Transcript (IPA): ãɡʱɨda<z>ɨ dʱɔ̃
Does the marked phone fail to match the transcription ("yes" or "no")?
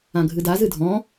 no